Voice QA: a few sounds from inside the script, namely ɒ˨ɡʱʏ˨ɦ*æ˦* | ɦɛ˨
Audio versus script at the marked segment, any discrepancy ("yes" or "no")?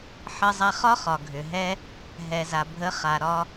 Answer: yes